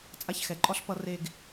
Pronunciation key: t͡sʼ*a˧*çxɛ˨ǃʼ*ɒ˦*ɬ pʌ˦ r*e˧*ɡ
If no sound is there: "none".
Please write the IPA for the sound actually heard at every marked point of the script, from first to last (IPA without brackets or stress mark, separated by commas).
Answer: a˧, ɒ˦, e˧